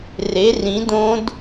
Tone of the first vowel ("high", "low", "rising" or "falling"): rising